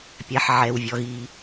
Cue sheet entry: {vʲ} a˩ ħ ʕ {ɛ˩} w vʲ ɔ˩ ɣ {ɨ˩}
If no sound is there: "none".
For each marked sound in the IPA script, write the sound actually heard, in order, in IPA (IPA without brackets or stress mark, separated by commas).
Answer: pʲ, ɛ˩, i˩